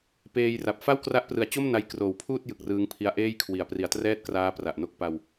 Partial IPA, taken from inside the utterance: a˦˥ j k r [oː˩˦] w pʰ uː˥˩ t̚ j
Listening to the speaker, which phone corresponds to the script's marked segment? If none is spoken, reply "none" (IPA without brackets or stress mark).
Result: oː˩˦